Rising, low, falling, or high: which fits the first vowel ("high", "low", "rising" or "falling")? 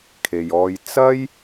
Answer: low